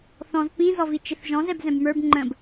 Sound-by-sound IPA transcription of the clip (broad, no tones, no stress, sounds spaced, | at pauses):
θ ɔ̃ z p ĩ z ɔ v i t͡ʃ ɪ θ ʒ ɔ̃ z ɛ b z ɛ̃ b m ə˞ b ŋ͡ǃ ə̃ b